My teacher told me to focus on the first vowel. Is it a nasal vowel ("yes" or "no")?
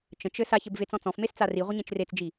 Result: yes